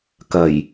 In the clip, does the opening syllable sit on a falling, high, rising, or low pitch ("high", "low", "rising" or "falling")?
low